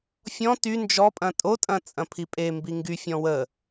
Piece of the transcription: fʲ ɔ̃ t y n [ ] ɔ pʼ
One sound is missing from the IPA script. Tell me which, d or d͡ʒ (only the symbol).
d͡ʒ